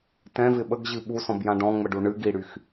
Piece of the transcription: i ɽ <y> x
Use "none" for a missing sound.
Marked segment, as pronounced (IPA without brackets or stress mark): y